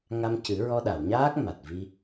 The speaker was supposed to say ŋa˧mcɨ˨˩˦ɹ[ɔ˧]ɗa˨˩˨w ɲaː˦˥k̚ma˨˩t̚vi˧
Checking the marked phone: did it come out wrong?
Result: no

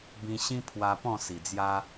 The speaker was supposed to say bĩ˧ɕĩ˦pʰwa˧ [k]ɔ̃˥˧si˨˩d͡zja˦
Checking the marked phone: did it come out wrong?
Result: yes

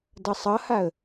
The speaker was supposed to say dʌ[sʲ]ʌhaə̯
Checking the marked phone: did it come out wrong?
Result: yes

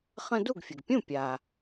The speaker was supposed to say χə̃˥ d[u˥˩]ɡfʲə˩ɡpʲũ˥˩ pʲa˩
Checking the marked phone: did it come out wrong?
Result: no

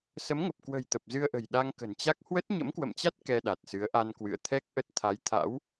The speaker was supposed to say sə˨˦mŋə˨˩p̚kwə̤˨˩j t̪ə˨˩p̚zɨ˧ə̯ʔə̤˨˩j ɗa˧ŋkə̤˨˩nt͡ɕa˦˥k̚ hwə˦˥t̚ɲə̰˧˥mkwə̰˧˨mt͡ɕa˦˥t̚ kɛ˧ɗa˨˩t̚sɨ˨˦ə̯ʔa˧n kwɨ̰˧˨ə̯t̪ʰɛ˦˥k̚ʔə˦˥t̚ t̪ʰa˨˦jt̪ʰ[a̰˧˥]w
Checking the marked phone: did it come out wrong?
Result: no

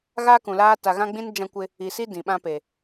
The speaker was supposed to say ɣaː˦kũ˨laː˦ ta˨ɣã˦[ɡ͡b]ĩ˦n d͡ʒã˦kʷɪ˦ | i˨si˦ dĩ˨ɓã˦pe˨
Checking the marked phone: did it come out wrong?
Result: no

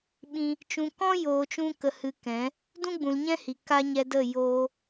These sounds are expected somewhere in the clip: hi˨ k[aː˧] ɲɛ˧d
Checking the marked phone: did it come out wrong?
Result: yes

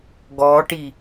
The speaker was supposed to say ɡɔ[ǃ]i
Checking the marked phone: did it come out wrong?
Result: yes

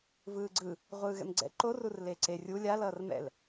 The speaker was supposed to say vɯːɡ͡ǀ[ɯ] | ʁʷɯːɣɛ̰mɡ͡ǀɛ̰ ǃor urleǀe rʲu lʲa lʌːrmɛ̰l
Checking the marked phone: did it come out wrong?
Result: no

